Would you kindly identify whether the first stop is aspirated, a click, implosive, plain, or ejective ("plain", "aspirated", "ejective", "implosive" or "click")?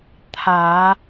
aspirated